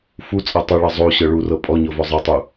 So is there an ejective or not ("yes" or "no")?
yes